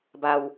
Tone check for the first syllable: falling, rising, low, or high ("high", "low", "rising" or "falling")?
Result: low